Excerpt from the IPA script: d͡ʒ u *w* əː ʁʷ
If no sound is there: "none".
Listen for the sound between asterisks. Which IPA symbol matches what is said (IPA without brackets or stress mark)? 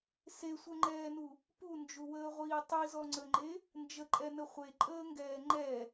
w